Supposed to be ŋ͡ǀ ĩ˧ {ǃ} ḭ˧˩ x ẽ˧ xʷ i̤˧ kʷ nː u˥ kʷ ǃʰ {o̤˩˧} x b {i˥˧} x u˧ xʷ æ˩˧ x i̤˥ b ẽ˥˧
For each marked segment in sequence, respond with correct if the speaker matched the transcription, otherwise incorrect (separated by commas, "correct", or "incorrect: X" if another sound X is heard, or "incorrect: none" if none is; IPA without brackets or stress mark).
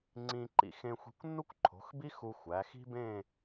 correct, correct, incorrect: i˥